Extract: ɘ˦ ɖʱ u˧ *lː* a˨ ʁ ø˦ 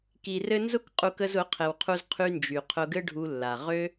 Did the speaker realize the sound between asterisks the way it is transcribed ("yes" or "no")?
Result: yes